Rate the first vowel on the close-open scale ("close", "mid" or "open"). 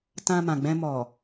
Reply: open